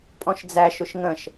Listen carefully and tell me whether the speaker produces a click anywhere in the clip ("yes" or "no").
no